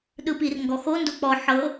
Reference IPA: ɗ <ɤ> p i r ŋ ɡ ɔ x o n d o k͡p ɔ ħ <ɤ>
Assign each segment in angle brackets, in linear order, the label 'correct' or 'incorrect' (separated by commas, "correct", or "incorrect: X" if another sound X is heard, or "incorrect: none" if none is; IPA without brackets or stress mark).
incorrect: ɯ, correct